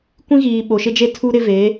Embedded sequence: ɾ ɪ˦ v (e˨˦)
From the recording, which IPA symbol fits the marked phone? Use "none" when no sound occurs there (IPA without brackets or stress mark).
e˨˦